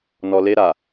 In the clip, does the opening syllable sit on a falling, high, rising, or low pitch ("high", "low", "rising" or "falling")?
low